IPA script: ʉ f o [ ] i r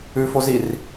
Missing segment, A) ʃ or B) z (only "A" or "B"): B